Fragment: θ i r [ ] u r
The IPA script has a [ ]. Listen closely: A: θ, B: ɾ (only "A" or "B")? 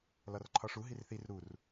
B